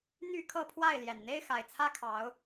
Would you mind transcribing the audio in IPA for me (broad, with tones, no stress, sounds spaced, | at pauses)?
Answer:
n̪ y˥˨ kʰ ɤ˥˨ pʰ w a˥˨ ɪ̯ l j ɛ˨˩ n n̪ e˦ ɪ̯ x a˨˩ ɪ̯ t͡sʰ ä˦ kʰ ɑ˨˦ ʊ̯